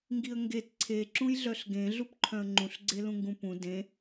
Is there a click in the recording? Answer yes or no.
yes